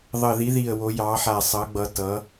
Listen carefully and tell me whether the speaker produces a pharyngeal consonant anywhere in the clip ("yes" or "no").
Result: yes